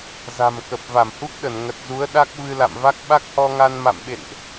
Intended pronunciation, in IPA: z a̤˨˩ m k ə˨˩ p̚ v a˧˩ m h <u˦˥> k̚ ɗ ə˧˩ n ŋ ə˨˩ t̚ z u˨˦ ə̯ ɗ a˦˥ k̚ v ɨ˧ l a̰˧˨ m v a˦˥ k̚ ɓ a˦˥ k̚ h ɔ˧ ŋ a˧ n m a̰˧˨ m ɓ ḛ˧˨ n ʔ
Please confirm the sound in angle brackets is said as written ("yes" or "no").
yes